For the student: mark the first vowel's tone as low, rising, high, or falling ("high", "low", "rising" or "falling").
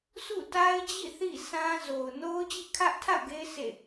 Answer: falling